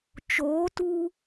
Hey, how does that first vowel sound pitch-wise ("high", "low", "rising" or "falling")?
rising